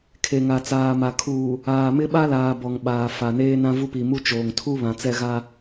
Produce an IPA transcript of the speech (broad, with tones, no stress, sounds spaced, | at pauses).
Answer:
kʰ e˨ ŋ a˨ t͡s aː˨ m a˨ kʰ uː˨ | aː˨ m ɪ˦ ɓ a˦ l aː˨ b ɔ˨ ŋ ɓ aː˨ f a˨ n eː˦ n ã˦ v u˦ p i˨ m u˦ t͡ʃ oː˨ ŋ tʰ u˦ β ã˨ t͡s ɛ˦ ɣ a˦